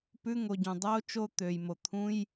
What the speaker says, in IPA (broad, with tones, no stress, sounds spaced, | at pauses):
p ʉ˧˥˧ ŋ o˩˧˩ ɟ ũ˩ dˤ oː˧˥˧ t͡ʃ o˦˨ t̪ øː˩ j m o˩ t̪ʰ ũ˧˥˧ j